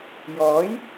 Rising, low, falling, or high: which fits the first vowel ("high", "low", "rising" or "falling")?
rising